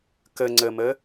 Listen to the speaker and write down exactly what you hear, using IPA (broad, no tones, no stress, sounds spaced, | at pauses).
k ə ŋ͡ǀ ə m ə